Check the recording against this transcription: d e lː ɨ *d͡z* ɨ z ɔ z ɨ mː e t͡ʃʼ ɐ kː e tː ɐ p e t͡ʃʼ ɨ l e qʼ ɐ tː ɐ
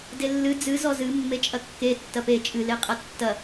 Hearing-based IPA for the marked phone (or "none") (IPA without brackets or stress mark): d͡z